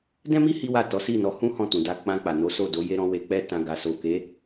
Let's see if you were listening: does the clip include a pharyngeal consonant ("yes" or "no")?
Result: no